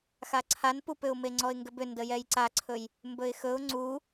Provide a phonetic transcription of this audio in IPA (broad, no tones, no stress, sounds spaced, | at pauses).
x a ǀʰ a n p u p ʏ ʊ̯ m e ŋ͡ǀ ɔ ɪ̯ ŋ ɡ ʏ b ʏ n d ə j ɛ j ǀ a ǀʰ ɵ j | m b ɵ ɪ̯ x ɵ ʊ̯ ŋ͡ǀ u